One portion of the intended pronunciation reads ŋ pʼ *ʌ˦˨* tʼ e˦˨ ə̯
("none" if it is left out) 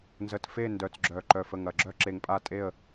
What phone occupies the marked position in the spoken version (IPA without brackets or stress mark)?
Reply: a˦˨